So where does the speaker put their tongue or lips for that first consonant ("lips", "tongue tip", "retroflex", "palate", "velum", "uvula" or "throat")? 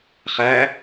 uvula